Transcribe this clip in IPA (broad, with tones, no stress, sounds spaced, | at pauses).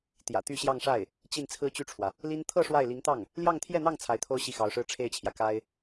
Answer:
t̪ j ä̰˨˩ t̪ y˥˧ ɕ j ɑ˥˧ ŋ ʂ a˥˩ ɪ̯ | t͡ɕ i˥˩ n t͡sʰ ɹ̩˥ t͡ɕ y˥˩ ʈ͡ʂʰ w ä˩ | l i˥ n t̪ʰ ɤ˥˧ ʂ w a˥˩ ɪ̯ l i˧˥ ŋ t̪ ɑ˥˩ ŋ | l j ɑ˥˧ ŋ t̪ʰ j ɛ˥˧ n̪ ɑ˥˩ ŋ t͡sʰ a˧˥ ɪ̯ t̪ʰ o˥ ʊ̯ ɕ i˥˩ x ɑ˧˥ ʊ̯ ʂ ɻ̩˥ ʈ͡ʂʰ e˥˩ ɪ̯ t͡ɕʰ j ä˩ k a˥ ɪ̯